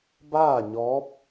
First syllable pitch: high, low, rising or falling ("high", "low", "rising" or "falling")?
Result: falling